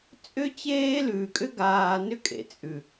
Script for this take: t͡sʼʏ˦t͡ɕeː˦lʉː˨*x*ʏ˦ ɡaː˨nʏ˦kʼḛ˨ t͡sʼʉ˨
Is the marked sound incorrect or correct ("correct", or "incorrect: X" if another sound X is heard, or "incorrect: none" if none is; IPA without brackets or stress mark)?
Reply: incorrect: kʼ